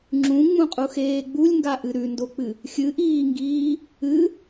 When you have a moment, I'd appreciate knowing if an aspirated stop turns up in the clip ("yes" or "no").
no